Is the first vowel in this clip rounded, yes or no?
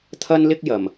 no